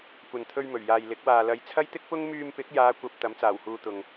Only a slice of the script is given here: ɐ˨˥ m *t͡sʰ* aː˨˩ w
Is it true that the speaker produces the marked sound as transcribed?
no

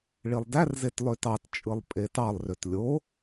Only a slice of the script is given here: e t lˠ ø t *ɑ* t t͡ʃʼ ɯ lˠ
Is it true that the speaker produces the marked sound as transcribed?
yes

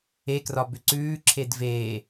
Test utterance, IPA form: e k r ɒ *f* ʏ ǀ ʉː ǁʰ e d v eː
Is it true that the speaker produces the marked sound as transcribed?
no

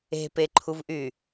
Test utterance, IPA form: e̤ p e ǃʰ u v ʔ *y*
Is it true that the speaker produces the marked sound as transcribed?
yes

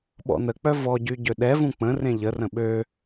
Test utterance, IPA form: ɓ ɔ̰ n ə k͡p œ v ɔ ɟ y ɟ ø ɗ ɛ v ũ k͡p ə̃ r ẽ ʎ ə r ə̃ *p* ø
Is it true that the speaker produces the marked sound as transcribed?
no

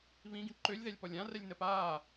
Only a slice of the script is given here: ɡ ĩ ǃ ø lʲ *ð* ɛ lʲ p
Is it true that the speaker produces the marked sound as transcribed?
yes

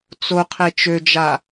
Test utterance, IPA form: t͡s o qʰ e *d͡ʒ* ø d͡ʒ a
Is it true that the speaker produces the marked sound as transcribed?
no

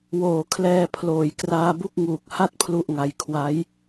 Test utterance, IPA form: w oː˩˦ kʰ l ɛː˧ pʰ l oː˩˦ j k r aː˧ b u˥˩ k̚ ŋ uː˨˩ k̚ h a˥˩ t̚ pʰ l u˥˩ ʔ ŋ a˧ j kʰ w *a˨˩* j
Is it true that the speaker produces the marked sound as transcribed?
no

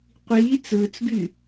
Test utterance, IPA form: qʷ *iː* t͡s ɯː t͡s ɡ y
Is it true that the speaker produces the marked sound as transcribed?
yes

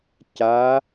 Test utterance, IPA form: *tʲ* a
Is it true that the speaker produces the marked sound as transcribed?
no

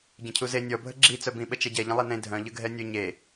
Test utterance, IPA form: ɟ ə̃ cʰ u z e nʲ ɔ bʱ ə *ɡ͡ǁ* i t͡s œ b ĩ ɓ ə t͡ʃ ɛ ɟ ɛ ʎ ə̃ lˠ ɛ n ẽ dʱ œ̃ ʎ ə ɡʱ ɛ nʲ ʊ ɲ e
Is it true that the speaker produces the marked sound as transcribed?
yes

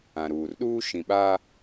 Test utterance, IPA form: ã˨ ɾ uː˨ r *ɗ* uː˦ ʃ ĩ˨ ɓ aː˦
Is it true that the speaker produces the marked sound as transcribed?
yes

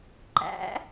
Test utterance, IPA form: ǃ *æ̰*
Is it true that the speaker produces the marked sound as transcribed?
yes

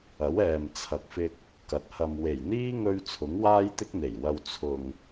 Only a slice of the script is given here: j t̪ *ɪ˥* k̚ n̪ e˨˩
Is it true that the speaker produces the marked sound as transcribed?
yes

